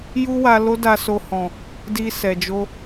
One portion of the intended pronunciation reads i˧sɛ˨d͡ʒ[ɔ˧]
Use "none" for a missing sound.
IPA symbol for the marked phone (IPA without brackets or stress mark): o˧